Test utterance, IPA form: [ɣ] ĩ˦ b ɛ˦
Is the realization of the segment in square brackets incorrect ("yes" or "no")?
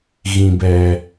no